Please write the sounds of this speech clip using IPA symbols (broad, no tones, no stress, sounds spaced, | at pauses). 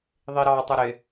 ðˤ i ɾ ɑ tˤ ʊ ɾ ɪ